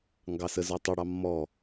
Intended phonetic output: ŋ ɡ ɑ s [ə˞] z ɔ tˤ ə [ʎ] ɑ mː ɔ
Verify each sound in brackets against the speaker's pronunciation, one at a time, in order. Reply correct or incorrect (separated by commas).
incorrect, incorrect